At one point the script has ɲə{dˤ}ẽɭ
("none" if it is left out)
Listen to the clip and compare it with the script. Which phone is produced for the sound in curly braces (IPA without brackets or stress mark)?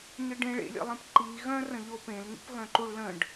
ɖ